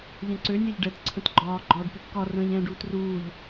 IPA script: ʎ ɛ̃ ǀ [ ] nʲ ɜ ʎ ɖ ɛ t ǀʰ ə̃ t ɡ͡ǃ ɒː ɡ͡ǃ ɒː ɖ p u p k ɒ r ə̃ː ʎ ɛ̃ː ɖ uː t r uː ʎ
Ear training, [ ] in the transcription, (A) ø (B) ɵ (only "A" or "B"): A